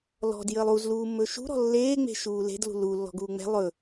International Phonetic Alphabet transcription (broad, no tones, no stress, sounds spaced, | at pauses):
l ɔ̤ d j əː lˠ u z l uː mː ɵ ʃ ṳ ɾ ɔ̤ lː eː ŋ͡m e̤ ʃ uː l e̤ d l ṳ l u lː ɔ̤ ɡ uː ŋ͡m ɛ̤ lˠ ɵ